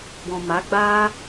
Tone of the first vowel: low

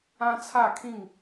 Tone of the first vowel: high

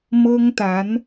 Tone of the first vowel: high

